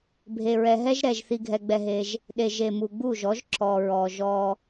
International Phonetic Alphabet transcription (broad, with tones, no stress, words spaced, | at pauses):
bʱe˨ɹɛ˨ɦɛ˦ʒ ɾɛ˨ʒ θi˧ɡʱɛ˧ɡ͡bɛ˧ɦe˧ʒ | ɗe˨ ʒe˨mu˨ ɡ͡bu˦˨ʒɔ˨˦ʒ ǁɔ˨ɹɔ˨ʒɔ˧